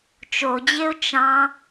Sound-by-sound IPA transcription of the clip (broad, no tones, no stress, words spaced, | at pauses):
t͡ʃod͡ʑeʊ̯ t͡ʃɑ̃